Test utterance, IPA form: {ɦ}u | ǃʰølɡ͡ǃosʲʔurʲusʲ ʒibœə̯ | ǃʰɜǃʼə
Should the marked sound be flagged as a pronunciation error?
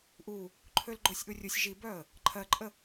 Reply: yes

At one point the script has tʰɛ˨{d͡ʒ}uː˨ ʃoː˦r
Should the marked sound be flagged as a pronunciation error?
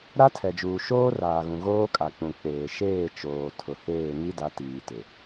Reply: no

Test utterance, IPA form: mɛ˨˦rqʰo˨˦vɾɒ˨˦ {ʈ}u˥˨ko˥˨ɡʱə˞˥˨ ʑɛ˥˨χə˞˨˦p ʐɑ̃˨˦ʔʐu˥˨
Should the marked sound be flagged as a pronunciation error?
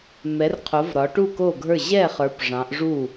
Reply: no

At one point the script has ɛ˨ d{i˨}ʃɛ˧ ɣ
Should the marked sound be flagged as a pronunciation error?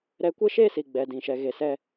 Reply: yes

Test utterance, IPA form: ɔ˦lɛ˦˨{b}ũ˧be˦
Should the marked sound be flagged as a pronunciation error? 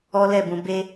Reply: no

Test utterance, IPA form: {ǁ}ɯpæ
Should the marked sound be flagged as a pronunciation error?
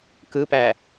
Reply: yes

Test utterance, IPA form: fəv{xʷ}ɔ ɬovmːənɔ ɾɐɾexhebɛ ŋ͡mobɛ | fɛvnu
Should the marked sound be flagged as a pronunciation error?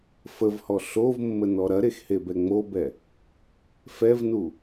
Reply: yes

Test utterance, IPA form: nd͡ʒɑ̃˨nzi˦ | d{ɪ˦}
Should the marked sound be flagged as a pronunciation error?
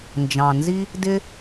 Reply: no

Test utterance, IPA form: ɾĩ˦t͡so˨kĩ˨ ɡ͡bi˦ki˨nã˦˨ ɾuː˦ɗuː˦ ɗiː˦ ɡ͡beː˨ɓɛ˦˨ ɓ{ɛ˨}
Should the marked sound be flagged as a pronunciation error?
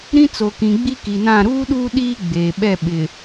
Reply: yes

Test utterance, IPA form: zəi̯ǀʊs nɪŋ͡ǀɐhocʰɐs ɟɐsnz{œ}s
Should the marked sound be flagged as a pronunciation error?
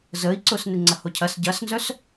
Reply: no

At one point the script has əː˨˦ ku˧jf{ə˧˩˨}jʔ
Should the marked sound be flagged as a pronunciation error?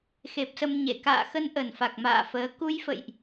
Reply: yes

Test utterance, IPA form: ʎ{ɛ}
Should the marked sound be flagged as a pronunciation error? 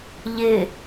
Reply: yes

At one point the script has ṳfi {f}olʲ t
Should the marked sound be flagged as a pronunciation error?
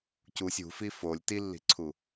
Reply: no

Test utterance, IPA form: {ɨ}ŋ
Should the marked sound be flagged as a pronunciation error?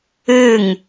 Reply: no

